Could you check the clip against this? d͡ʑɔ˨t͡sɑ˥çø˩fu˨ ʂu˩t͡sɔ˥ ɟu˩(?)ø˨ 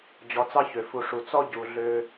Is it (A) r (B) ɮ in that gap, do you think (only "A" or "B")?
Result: B